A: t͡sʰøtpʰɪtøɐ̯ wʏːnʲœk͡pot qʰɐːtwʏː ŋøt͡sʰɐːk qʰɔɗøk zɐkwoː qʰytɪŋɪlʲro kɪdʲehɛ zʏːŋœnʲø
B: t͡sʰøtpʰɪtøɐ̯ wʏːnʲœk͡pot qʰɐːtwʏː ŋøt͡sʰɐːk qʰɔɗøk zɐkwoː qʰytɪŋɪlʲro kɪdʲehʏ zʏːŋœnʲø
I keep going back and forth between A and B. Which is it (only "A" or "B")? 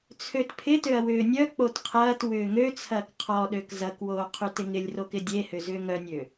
B